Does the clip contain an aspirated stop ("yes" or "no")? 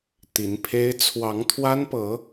yes